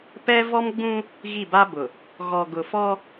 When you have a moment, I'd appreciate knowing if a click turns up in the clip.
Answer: no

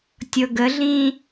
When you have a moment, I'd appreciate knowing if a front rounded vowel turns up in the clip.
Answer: no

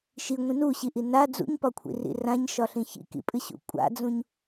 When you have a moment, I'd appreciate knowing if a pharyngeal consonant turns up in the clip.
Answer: no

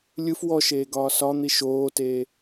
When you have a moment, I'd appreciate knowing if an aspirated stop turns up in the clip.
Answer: no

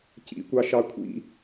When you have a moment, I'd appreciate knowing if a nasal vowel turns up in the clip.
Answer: no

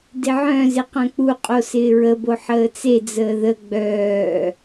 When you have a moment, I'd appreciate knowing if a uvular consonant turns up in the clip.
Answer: yes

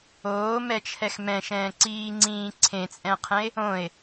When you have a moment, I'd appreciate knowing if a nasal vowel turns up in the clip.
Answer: yes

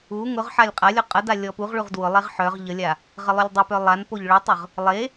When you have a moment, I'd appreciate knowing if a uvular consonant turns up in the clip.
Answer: yes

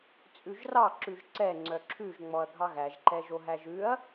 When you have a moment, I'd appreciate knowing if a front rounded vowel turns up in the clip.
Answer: yes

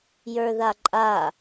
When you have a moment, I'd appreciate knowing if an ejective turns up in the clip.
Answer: yes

